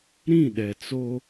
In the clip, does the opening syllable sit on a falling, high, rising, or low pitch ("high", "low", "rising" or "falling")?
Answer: falling